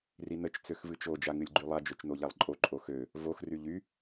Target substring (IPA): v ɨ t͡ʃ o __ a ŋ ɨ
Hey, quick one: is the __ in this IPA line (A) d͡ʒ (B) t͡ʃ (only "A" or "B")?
A